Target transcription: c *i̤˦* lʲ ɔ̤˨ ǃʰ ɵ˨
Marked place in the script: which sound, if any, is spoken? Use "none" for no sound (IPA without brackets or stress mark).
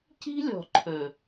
i̤˦